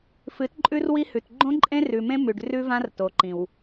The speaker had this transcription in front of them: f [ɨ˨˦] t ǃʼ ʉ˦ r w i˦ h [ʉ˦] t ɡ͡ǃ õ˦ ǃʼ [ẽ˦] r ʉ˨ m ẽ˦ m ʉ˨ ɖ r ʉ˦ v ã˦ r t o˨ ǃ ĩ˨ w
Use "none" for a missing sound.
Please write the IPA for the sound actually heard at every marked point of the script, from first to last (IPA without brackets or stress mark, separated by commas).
ɨ˨˦, ʉ˨, ẽ˦